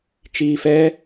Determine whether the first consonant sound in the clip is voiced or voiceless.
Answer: voiceless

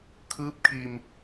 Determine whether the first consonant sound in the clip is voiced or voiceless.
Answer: voiceless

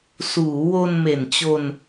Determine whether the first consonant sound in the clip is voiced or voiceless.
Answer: voiceless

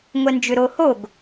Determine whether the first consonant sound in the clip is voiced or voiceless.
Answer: voiced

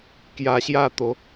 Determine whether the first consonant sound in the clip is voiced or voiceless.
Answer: voiceless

